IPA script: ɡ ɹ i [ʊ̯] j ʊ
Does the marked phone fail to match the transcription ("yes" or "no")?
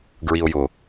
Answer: no